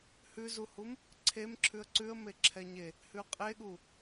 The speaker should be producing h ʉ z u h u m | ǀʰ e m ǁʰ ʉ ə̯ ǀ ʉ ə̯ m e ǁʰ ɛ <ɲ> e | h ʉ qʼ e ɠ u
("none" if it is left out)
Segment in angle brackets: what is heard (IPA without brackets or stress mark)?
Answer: ɲ